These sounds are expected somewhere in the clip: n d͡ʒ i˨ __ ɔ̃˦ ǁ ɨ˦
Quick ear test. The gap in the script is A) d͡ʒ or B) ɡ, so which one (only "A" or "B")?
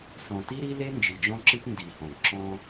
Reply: A